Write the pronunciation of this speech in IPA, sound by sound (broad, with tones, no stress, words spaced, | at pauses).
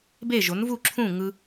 be˥˩ʒo˩˥nvu˥˩ǁʰũ˥˩ ŋɯ˧